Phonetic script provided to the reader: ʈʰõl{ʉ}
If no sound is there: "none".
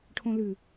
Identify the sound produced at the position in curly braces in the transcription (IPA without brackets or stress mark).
ʉ